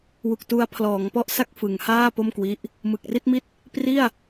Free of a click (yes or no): yes